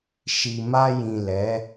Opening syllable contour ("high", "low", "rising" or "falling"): low